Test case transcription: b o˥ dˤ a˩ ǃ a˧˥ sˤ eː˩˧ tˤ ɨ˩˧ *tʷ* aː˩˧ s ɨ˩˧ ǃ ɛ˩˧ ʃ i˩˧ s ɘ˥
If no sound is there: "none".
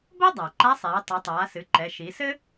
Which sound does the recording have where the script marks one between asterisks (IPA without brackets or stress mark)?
tˤ